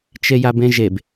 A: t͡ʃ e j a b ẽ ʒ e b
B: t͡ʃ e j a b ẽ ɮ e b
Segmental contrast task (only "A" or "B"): A